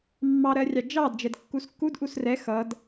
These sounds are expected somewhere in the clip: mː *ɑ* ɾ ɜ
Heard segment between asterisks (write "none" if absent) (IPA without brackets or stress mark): ɑ